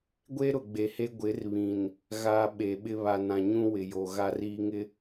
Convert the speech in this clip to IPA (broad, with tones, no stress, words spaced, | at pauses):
ɡʷe˦ɾʊ˨ ɡ͡be˨he˦ ɡʷɪ˨˦rβĩ˨n | ɣaː˨ ɓe˨ɓɪ˦ βa˨ nã˨ɲũ˦ wɪ˨jo˨ ɣa˦riː˦ŋɪ˦